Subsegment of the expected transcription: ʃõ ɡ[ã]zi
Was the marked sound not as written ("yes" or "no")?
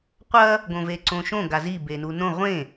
yes